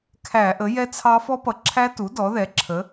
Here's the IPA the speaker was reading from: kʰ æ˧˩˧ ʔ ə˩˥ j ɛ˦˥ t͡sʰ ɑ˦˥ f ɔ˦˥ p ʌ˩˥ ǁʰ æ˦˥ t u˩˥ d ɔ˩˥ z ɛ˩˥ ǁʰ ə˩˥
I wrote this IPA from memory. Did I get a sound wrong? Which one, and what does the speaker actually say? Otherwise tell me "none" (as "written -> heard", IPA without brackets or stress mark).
z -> ð